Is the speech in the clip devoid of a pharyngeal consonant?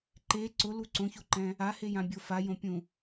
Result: yes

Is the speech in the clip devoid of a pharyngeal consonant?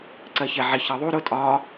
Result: no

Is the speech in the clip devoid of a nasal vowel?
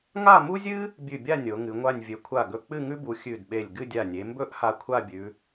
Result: yes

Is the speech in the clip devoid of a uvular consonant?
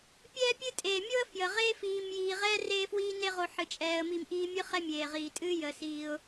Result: no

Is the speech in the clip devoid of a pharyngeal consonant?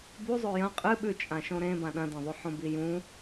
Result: no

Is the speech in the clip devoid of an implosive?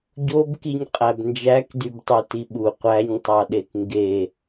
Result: no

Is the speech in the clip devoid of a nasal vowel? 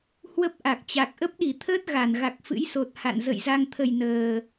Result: yes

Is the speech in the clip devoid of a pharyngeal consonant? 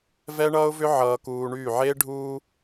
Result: no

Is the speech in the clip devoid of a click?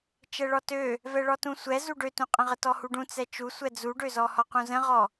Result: yes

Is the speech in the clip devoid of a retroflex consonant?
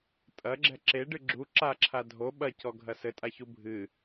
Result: no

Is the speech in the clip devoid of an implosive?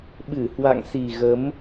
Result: no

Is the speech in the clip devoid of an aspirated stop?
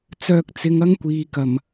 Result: yes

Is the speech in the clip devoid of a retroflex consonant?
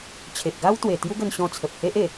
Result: yes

